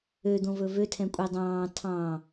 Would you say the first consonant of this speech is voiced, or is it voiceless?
voiced